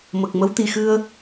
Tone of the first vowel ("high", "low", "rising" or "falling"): low